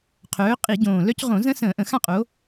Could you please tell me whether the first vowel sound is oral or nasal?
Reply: oral